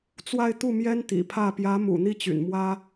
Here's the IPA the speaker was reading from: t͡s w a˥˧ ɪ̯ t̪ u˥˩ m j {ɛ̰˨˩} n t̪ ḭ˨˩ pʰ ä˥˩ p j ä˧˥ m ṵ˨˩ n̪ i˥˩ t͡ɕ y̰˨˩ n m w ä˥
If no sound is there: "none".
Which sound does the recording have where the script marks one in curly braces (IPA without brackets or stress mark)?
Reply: ɛ˥